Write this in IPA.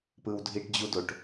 p ɯ w dʱ i ʈ d͡ʑ u d o ʈ

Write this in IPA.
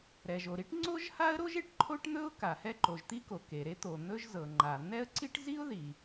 ɾ ɛ˩ ʒ o˩ ɾ i˥ ʈ ŋ͡ǀ o˥ ʒ h a˥ ə̯ ɾ o˥ ʒ e˩ ʈ ǃʰ o˥ ʈ n̪ ɵ˥ ʊ̯ k a˩ h ɛ˥ ǃ o˩ ʒ t̪ i˥ k o˩ k e˩ ɾ e˥ t̪ o˩ n̪ ɵ˥ ʒ z ɤ˩ ŋ͡ǃ a˩ n̪ ɛ˥ ə̯ ǀ i˥ ʈ z i˥ ʊ̯ ð i˩

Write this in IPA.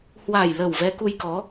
h w a˨˩ j l ə˨˩ w v ɛ˨˦ k u˧ j k ɔ˨˦

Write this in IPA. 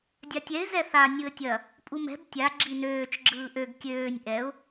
dʲ a tʲ ɛ ɪ̯ z ɛ θ a nʲ ɯ ə̯ tʲ ɐ | pʼ u m ɛ̤ b tʲ a ɡ͡ǁ i n øː t͡ʃ ɡ͡ǁ ɯː ʔ ø ɡ kʲ øː nʲ ʔ ɛ ʊ̯

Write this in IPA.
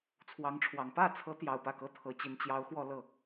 t͡sʰ w ɑ˧˥ ŋ ʈ͡ʂʰ w ɑ˨˩ ŋ p ä˥˩ t͡sʰ ɤ˧˥ t̪ j ɑ˨˩ ʊ̯ p ä˥˩ k ɤ˥ t̪ʰ ɤ˧˥ t͡ɕ i˧˥ n t͡ɕ j ɑ˧˥ ʊ̯ x w ɔ˥˧ l ɤ˥˩

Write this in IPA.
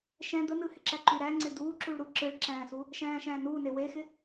ʃ ɛ̃ d̪ ə n ɯ h ɪ ǁ æ ǃ y ɾ æ ŋ͡ǀ ɪ d̪ uː ǁ u ɭ ɾ u ǁ ɯ ɭ ǁ æ̃ː s u | ʃ æ̃ː ʃ æ̃ː n uː n e w e x ɪ

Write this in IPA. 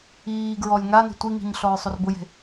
iː ɡ ɹ ɔ lʲ ŋ a n e̤ tʷ i ŋ i̤ ɲ ɬ ɔ ɹ sˤ o r b ʊ j e̤

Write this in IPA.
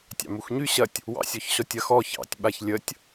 tʲ ɑ̰ m u x ɲ y ɕ ɐ tʲ | w ɑ̰ sʲ ɔ ç ɕ ɔ tʲ ɐ x ɔ ç ɑ̰ tʲ ɓ a ç lʲ ə tʲ

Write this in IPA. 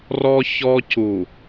r ɔ˦ ç ɔ˦ c u˨

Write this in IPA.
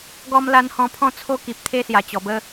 ɡ ɔ˦ m l a˦ n h ɔ̃˧ pʰ ɔ̃˦ t͡sʰ o˦ k i˨ p̚ t̪ʰ e˦ s j a˨˩ t͡ɕ ɔ˨˩ b ə˦

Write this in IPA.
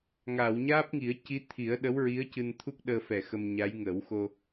ŋ a˨˩˨ w ɲ aː˦˥ p̚ ŋ i˨˩˦ ə̯ c i˧˥ t̪ʰ i˨˩˦ ə̯ ɗ ə˧˥ w ɹ i˧˥ ə̯ c ɨ˧ n t̪ʰ u˦˥ k̚ ɗ əː˧ f ɛ˨˩ x ə˧ m ɲ a˧˥ j ŋ ə˨˩˦ w x o˧

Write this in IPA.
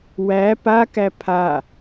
w æ p a k æ pʰ a

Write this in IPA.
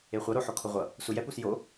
e χʷ ʌ ɾ o ħ o kʰ o ʁʷ ʌ | s u j ɛ p u s j o

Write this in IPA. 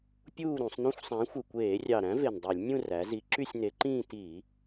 pʲ uː˥˧ ɾ ũ˧˩˧ sˤ n ũ˥˧ xʷ sˤ æ̃˨˥ xʷ ɯ˨˩ kʷ eː˧˩˧ rʲ ɑ˨˩ ɾ æ̃˨˥ v e˨˩ n dˤ y˧˩˧ lʲ nʲ ũ˥˧ r æ˩˧ z i˨˥ ǁ y˥˧ sʲ n e˨˥ ǃ ĩː˥˧ t i˧˩˧

